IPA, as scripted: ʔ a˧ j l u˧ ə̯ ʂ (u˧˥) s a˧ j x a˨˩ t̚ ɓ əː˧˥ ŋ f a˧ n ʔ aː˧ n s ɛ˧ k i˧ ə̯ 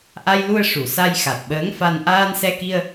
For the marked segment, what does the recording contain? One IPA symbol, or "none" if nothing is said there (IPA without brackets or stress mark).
u˨˩˨